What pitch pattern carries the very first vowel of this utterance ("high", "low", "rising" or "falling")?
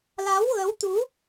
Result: rising